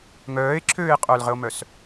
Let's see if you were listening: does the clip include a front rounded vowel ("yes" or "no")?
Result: yes